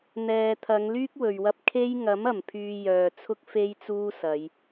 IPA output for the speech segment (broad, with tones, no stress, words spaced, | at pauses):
n̪ɛː˨t̪ʰɐ˨˧ŋ lyː˥k̚wɵ˨ɥwɐ˧p̚ kʰe˥j ŋɐ˨˥m ɐ˨˩mpʰyː˧jœː˨t͡sʰʊ˥k̚ fe˥jt͡suː˥sɐ˨˧j